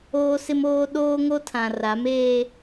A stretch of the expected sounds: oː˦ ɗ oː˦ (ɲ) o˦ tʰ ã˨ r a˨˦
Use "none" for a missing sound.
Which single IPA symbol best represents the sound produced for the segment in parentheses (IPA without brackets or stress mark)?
ŋ